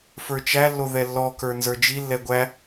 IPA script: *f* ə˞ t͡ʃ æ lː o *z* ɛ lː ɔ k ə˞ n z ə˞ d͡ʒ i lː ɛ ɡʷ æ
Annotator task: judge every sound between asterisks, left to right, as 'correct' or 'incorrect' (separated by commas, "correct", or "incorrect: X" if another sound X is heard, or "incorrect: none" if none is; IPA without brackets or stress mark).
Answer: correct, incorrect: ð